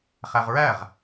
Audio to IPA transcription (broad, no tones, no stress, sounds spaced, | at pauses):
χ æ ʁ ɹ æ ʁ